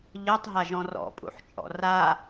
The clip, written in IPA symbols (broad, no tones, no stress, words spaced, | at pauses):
ʎɤtˤɦaʒɔ̃ rɔ̰pʼṵħt͡ʃʼɔ̰ ra